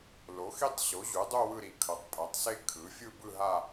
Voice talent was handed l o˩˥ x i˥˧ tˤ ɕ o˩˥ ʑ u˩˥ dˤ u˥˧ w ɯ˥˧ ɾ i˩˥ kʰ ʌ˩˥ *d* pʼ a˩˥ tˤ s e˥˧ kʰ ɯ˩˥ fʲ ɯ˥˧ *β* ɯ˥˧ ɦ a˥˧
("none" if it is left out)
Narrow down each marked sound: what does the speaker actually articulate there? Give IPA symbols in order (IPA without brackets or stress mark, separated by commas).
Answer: tˤ, b